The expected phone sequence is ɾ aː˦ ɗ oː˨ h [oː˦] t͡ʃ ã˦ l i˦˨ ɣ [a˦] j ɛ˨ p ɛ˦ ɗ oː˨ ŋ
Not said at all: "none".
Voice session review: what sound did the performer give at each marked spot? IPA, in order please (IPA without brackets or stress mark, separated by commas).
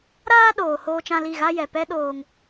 oː˦, a˦